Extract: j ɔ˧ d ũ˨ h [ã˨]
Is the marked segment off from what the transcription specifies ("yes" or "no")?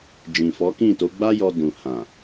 no